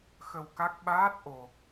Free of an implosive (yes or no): no